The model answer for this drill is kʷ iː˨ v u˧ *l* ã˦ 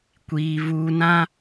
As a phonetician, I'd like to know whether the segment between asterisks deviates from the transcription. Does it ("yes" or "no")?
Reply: yes